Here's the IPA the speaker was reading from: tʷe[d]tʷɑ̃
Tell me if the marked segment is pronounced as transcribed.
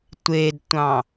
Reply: yes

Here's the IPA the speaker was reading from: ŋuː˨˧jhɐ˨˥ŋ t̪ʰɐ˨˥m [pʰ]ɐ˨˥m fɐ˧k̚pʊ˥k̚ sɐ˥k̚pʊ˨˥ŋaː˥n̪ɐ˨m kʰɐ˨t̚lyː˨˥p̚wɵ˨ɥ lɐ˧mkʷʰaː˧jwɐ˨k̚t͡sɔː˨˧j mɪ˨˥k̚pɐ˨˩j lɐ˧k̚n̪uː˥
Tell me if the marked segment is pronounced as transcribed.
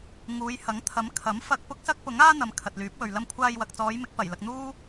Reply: no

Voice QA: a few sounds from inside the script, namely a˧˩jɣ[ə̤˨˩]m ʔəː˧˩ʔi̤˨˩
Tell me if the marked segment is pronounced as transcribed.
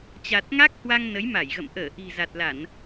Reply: no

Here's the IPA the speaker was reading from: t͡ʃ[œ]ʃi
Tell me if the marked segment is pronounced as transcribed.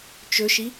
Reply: no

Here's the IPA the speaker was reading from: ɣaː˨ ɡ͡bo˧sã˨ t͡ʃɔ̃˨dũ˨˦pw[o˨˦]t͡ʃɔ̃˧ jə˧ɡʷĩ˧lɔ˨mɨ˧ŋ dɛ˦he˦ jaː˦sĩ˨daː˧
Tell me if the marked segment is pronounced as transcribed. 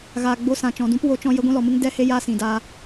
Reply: no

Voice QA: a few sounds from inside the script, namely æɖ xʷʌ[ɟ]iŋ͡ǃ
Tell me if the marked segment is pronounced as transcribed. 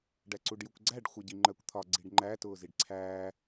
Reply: yes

